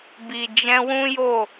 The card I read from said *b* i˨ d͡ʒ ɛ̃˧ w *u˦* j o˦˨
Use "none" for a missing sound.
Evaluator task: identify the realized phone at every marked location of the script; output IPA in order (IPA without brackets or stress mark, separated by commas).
b, ũ˦